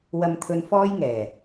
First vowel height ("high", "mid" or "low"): low